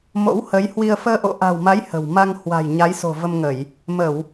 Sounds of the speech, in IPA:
m o̰˧˥ w h ə˨˦ j h w i˧ ə̯ f əː˧ ʔ o̰˧˨ ʔ a̤˨˩ w m a˨˦ j h ə̤˨˩ w m a˧ ŋ h w a̤˨˩ j ɲ a˨˦ j s o̤˨˩ v ə˧ m ŋ ə˧˩˨ j | m ə˧˩˨ w

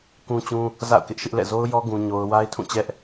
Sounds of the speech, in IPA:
k ũ˦ t͡ɕ ũ˦ | z a̰˦˨ ʊ̯ k ɪ˦ ʔ ʃ ɪ˦ ʔ l ɛ̰˦˨ z o˦ ʊ̯ j ɔ˦ ɡ ũ˦ ɲ o˦ ʊ̯ w a˦ ɪ̯ tʰ ũ˦˨ t͡ɕ ɛ˦ ʔ

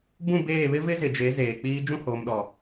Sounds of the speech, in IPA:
b ũ˦˨ b eː˦˨ β ɪ˦ v ɪ˦ z ɪ˨ d͡ʒ e˨˦ z eː˨ k͡p iː˦ d͡ʒ ũ˦˨ h oː˨ m ɗ ɔ˨

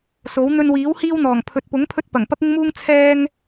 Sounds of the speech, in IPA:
s o˨˥ w n̪ ɵ˧ n w iː˨˥ w h iː˥ w n̪ ɔː˨˩ ŋ pʰ ɵ˨ t̚ p ʊ˨˥ ŋ pʰ ɵ˥ t̚ p ɐ˨˩ ŋ p ɐ˥ k̚ ɪ˥ ŋ m uː˥ ŋ t͡sʰ ɛː˥ ŋ

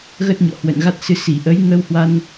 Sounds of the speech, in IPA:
ɣ ə˦˥ t̚ ɲ ɔ̰˧˨ h w ə̰˧˨ n ɣ a˦˥ t̚ s ɨ˨˦ s i˧˩ ʔ ə˨˦ j ŋ əː˧ w h w a˧ n

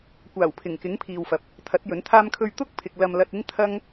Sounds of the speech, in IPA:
kʷ aː˨˩ w pʰ ɪ˨˩ ŋ k ɪ˨˥ ŋ pʰ iː˨ w f ɐ˨ p̚ | t̪ʰ ɐ˨˥ t̚ j ɵ˨˥ n t̪ʰ aː˥ m kʰ ɵ˥ ɥ t̪ ʊ˥ k̚ pʰ ɪ˨ k̚ l ɐ˧ m l ɐ˧ t̚ ɪ˥ ŋ t̪ʰ ɐ˥ ŋ

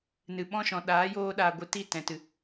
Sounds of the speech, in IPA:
n ɨ˨ ɓ ɔ̃˦ ʃ ɔ̃˨ ɗ aː˨˦ j oː˧ ɗ aː˨ ɡʷ ɨ˨ t i˦˨ t ɛ̃˨ t ɨ˨

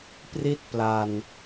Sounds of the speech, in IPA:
p r i˥˩ t̚ p l a˨˩ n

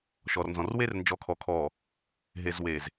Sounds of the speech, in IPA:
ʃ ɔ˨ r n z ɔ̃˨ r w e˦ r n d͡ʒ ɔ˨˦ kʰ ɔ˨ kʰ ɔ˨ | ɦ e˨ z w e˨ z

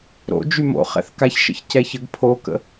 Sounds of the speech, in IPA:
ɾ o̰ d͡ʒ y m o̰ χ ɛ̰ θ k a ç ʃ ə̰ ç c ɛ ç ə ɡ pʰ o k ə̰

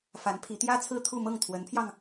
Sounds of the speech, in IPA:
f a˧˥ n pʰ i˧˥ t̪ j ä˥ t͡sʰ ɹ̩˥˧ t̪ʰ u˥˧ m ɤ˥˩ ŋ t̪ʰ w ə˧˥ n pʰ j ɑ˧ ŋ

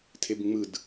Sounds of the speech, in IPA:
tʰ e b ŋ͡m ɯ d

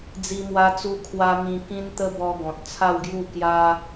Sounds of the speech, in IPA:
d͡z i˦ m w a˦ t͡s u˦ kʰ w a˦ m ĩ˧ k ĩ˦ n t̪ ə˦ b ɔ˧ ɡ ɔ̃˨ t̚ t͡sʰ a˥˧ w ɡ j u˥˧ k j a˦

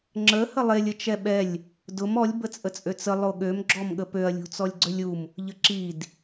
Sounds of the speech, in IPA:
ŋ͡ǁ ə h ə lˠ e lʲ ə t͡ʃ ɛ ɓ ɛ lʲ | d ʊ m ɔ lʲ b ə t͡sʼ ə t͡sʼ ø t͡s ə lˠ o ɠ ø m ɡ͡ǁ ɔ m ɠ ə p ø ɐ̯ lʲ ṳ t͡s ɔ lʲ ɡ͡ǀ ø lʲ u m | ʎ ə ǁ i d

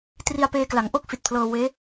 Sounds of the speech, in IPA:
t r i˧ a̯ p eː˧ k l a˩˦ ŋ ʔ o˥˩ k̚ f i˨˩ t̚ pʰ l ɤː˧ w eː˦˥

